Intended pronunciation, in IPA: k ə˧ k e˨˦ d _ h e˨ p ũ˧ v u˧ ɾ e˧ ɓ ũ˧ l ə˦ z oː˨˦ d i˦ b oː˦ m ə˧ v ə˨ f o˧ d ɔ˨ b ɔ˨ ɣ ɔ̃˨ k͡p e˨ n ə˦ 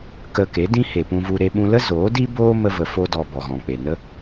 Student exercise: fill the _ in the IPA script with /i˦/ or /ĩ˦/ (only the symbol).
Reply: ĩ˦